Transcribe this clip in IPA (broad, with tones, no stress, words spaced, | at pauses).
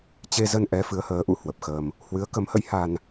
t͡ɕe˧zə˧nʔɛ˨˦ fɨ˨˦ə̯həː˨˦ʔṵ˧˥ hwə˨˩p̚xəː˧m | hwɨ˨˦ə̯kə˨˦mhə̰˧˥jha˧n